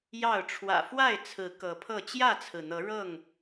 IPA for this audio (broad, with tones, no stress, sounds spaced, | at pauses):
j ɑ˥˨ ʊ̯ ʈ͡ʂʰ w ä̰˨˩ f w a˥˨ ɪ̯ t͡sʰ ɹ̩˨˦ k ɤ˨˦ pʰ ɤ˥˨ t͡ɕ j ä˥˨ t͡sʰ ɹ̩˩ n̪ ɤ˨˦ ɻ ɤ˥˨ ŋ